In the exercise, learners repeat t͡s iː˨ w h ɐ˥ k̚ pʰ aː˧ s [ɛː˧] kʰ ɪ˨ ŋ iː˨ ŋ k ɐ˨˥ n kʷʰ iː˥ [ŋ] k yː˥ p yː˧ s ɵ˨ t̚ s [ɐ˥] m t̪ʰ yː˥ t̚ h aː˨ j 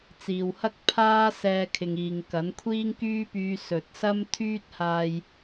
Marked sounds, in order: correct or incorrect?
correct, correct, correct

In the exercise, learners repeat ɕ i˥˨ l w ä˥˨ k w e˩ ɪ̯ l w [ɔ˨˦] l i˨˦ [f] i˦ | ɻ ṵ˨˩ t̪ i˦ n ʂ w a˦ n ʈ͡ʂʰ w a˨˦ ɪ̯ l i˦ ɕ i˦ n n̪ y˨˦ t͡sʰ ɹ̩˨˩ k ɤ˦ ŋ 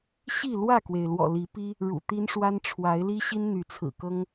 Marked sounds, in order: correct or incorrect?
incorrect: ɔ̰˨˩, incorrect: p

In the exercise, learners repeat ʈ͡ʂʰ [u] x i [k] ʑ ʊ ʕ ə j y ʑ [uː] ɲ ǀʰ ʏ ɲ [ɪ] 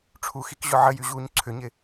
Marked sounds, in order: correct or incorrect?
correct, correct, correct, correct

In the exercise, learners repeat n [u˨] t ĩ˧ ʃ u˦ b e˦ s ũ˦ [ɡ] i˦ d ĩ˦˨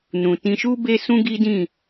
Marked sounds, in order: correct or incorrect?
incorrect: ũ˨, correct

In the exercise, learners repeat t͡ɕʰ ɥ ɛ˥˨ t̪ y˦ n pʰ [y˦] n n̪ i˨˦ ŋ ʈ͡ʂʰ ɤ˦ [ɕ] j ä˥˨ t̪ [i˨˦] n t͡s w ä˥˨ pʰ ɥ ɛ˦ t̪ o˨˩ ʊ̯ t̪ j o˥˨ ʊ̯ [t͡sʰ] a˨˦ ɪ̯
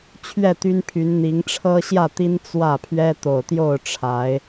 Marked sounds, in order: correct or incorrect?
incorrect: y˨˦, correct, incorrect: i˦, incorrect: ʈ͡ʂʰ

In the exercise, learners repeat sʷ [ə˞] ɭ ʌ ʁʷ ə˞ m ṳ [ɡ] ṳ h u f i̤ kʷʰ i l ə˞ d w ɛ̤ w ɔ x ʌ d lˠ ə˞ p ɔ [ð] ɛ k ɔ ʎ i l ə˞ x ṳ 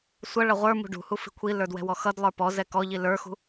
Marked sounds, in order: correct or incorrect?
incorrect: ʌ, incorrect: ɖ, incorrect: z

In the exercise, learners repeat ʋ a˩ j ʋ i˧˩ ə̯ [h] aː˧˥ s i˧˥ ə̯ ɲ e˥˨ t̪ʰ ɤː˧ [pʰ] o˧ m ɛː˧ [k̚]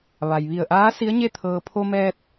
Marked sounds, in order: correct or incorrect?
incorrect: ʔ, correct, incorrect: t̚

